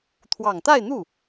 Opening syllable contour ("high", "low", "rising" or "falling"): low